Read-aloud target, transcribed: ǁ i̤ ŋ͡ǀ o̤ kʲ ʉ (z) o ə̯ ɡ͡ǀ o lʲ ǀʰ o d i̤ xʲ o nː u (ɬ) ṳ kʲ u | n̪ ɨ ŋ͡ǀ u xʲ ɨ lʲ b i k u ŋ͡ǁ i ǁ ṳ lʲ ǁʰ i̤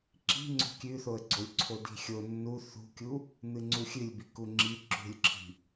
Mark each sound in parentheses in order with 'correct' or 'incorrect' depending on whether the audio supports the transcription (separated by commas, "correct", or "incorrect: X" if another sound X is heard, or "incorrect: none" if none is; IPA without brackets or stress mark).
incorrect: θ, incorrect: θ